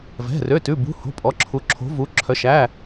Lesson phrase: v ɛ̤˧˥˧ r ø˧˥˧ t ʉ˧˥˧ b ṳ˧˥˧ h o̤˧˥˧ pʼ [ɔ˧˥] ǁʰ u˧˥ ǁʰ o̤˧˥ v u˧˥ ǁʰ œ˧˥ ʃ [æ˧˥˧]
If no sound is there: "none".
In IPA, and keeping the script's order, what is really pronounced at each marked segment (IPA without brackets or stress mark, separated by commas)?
ɔ˧˥, æ˧˥˧